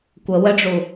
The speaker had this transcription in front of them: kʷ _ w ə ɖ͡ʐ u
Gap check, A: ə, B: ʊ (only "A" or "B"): A